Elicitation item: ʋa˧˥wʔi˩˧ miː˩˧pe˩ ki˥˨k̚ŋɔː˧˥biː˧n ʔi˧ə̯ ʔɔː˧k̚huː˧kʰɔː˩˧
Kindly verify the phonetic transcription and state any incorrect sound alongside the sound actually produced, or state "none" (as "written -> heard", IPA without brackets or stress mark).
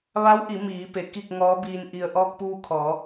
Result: h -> p